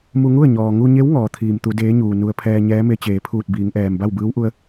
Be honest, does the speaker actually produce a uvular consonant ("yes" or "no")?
no